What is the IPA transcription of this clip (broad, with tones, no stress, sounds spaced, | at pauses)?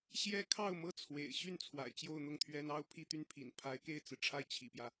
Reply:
ɕ j ɛ˥ kʰ ɑ˥˩ ʊ̯ m ɤ˥ t͡sʰ w ḛ˨˩ ɪ̯ ɕ y˥˩ n t͡sʰ w a̰˨˩ ɪ̯ t͡ɕ j o˥˧ ʊ̯ n̪ ʊ˥˩ ŋ t̪ʰ ɥ ɛ˥ n ɑ˥ ʊ̯ pʰ i˥˧ t̪ y˥˩ n pʰ ḭ˨˩ n pʰ a˧˥ ɪ̯ k e˥˩ ɪ̯ t͡s ɹ̩˩ ʈ͡ʂʰ a˥˩ ɪ̯ t͡ɕʰ ḭ˨˩ p j ä˦